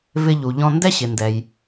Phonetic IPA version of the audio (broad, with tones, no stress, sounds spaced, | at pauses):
v ɪ˧ ʎ u˩ ʎ ɔ̃˧ n d ɛ˥ ɕ ɪ˩ n d ɛ˩ j